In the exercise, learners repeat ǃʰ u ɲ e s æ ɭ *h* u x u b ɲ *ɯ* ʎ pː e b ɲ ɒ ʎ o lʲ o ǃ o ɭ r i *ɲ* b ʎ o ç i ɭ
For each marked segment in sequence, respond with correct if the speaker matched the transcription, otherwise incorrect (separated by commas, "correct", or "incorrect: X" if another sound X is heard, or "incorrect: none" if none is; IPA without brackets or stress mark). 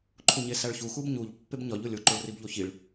incorrect: ç, incorrect: u, incorrect: none